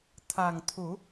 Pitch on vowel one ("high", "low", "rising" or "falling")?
low